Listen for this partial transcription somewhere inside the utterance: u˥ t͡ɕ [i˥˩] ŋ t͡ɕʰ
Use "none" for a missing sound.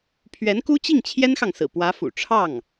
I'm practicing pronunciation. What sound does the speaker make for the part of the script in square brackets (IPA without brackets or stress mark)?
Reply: i˥˩